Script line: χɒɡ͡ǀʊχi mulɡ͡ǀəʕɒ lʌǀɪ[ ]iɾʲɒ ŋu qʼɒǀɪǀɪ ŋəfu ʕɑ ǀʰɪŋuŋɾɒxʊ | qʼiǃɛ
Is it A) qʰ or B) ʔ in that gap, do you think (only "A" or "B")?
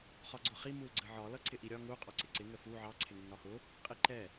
B